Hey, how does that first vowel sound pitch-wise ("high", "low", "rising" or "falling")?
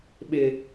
high